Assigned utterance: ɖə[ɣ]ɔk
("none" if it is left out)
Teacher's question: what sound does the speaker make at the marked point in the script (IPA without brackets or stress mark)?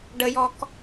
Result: j